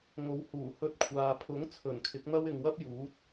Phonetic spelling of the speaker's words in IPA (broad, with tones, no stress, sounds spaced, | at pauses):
ŋ o˨˧ w h uː˨˩ h ɵ˧ t̚ kʷʰ aː˨ pʰ ʊ˨˥ ŋ t͡sʰ ɵ˨˩ n kʰ ɪ˨˥ k̚ n̪ ɐ˥ w ɪ˨ ŋ w ɐ˥ p̚ j uː˨˥ t̚